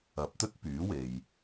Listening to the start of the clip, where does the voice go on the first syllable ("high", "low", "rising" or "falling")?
rising